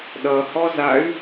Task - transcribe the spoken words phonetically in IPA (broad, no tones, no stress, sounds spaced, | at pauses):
ɗ ʌ h ɔ z a y̯